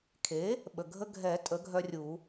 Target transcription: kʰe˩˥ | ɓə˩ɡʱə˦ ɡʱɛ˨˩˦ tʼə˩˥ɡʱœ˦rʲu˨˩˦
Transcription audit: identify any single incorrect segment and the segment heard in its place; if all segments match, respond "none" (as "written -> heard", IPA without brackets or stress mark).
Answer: none